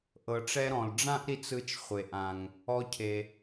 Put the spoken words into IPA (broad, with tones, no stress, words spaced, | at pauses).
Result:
ʔɤ˩ʈ͡ʂɛ˧ɾɔ̃˩l ɖ͡ʐã˥ʔɾi˧t͡sɯ˧t͡ʃ χʷe˩ʔã˩ŋ | ɔ˧cʰe˩